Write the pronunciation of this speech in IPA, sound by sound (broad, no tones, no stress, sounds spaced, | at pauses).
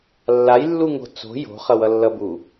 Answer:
lː a j lː u ŋ o̤ t͡s o̤ j o̤ χ ʌ w ʌ lː ʌ b u